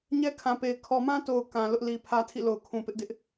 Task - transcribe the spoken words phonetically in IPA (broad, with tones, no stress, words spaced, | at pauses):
ɲɛ˦kʰã˨pe˨ɪ̯ kʰɔ˨mã˦to˨ʊ̯ kã˨lʊ˦ʔ li˨pʰä˦tʰḭ˦˨ lo˨ʊ̯kʰũ˨pɪ˦ʔ dɪ˦ʔ